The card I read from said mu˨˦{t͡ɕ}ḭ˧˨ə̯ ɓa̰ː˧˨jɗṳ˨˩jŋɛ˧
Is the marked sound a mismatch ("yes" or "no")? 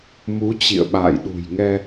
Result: no